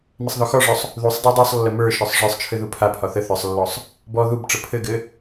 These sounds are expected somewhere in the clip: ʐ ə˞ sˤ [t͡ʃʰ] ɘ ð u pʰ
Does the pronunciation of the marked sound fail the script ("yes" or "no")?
no